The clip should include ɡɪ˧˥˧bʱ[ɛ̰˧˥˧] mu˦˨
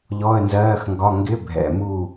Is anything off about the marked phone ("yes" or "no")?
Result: yes